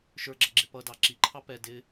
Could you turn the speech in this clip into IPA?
ʃ ə˞ ɡ͡ǁ ʌ ɡ͡ǁ ɪ p ʌ d ɑ ǁ i ǃʰ ɑ p ɛ d ɪ

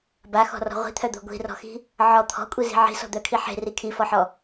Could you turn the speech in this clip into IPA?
b a x ɔ̤ r ɔ̤ ʁʷ i̤ t̪ʰ œ d̪ o̤ ɡʷ i̤ r ɔ̤ x i̤ | ʕ ɔ t̪ʰ ɔ̤ kʷʼ i z i̤ ʕ i̤ s ɔ̤ d̪ œ kʰ i ħ e̤ r i kʰ i f ɔ ħ ɔ

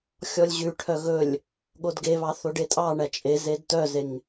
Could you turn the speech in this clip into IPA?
xʲ ɔ lʲ ʑ ʉ ʈʰ œ ɣ ɵ lʲ | ɠ o d ɡ e β ɑ θ o ɖ e tʼ ɑ ɳ æ t͡ʃʼ e z e d t œ z e ŋ

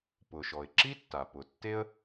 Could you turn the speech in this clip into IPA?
p ʊ˩ ʃ ɔ˩ ɪ̯ ǁ i˥ tː a˩ p ʊ˩ tː e˥ ə̯

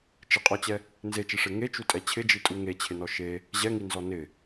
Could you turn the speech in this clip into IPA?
t͡ʃ ɪ qʼ ɔ t͡ɕ ɛ | n z e t͡ʃ e ʂ e ŋ e t͡ʃ u tʼ ɛ t͡ɕʰ ɪ d͡ʒ i tʼ u ŋ e t͡ɕʰ ɪ n ɔ ʃ e | ʑ ɛ ŋ i n z ɔ n ɪ

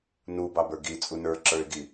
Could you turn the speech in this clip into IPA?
n u b ɑ b ə˞ ɡ i t͡sʼ u n ə˞ ǁ ə˞ ɪ̯ ɡ i

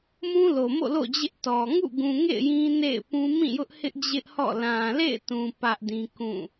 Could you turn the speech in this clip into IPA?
m ũ˦ l o˨ m o̰˦˨ l o̰˦˨ d͡ʑ ɪ˦ ʔ t ɔ˨ ŋ ṵ˦˨ ɡ ũ˨ ŋ ḛ˦˨ ɪ̯ j ĩ˦ n ḛ˦˨ ɪ̯ p ũ˦ m ĩ˦˨ j ʊ˦ ʔ h ɪ˦ ʔ d͡ʑ ɪ˦ ʔ h ɔ̰˦˨ l ã˨ l ḛ˦˨ ɪ̯ t ũ˨ p ä˦ ʔ d ĩ˦ k ũ˦˨

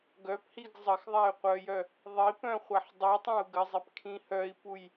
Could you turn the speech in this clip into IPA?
ɡ œ p h i ɡ zˤ ə x ðˤ a y̯ qʷ œ j œ | ðˤ i p œ̃ χʷ a ħ dˤ i tˤ ã u̯ ɡ ə zˤ i p kʰ ĩ h œ i̯ p u j

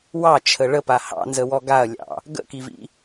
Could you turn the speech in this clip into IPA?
w ɑ t͡ʃʰ ə ɭ ə p a h ɑ̰ n z ə w ɔ ɡ a ɐ̯ lʲ ɑ̰ | ɡ ə̰ k i v ḭ

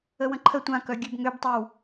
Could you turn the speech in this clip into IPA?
ə w ə̃ ǃʰ ə tʷ ã k œ ɡʲ ø b ŋ ø b tˤ ə w

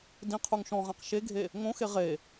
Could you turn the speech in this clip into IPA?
d ĩ qʰ u ŋ ʃ ɔ̃ ʁ ã q ʃ e ɡʱ e | ŋ õ x e ʁ e

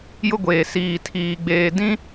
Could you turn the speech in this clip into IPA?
j ʊ˦ ɡʷ eː˨ s iː˨ tʰ iː˨ ɡ͡b eː˨ d ĩ˦

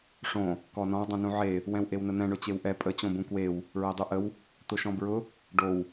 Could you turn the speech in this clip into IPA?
ʂ õ | k ɔ n ɔ̃ w dˤ õ n ũ ʕ e | w ɛ̃ w ʔ e w n ə n̪ ɛ̃ ɳ ʊ t͡ɕ e w ʔ ɛ pʼ ə t͡ɕ õ b ũ k w e w | ɹ ɛ dˤ u ʔ ə w | t̪ ʊ ʃ ɔ̃ b ɹ ʊ | ɖ o w

